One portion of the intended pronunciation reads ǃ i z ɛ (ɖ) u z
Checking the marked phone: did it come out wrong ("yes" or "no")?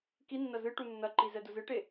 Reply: yes